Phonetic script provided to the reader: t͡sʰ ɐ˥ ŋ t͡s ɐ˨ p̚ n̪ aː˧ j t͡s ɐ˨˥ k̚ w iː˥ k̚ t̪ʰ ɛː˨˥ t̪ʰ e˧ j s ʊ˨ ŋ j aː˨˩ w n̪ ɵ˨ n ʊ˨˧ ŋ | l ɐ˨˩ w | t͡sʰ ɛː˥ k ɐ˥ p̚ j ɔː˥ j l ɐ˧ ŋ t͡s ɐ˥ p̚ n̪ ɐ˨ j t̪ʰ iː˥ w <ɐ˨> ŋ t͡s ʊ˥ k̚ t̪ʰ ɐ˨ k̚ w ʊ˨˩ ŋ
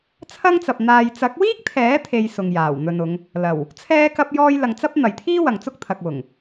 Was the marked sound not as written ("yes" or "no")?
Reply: no